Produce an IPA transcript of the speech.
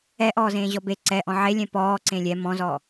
ɛ ʔ ɔː z ẽː ʑ ɔ b e ǀ ɛ ʔ ɔ̃ ʕ e lʲ ɛ̃ p ɔː ǀ ẽ lʲ ɛ m ɔ̃ z ɔ

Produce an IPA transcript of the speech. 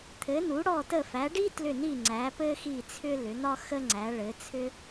t̪ʰ ɘ˨˦ n u˨˦ ɽ ɔ˦˨ t ə˦˨ f æ˨˦ ɖ i˥ t l ʏ˦˨ n i˦˨ ŋ͡ǀ æ˨˦ p ɘ˥ x i˦˨ t͡sʰ ʏ˥ l ʏ˨˦ n̪ ɒ˥ x ə˥ ŋ͡ǀ æ˨˦ ɭ ɘ˨˦ t͡sʰ ʏ˥

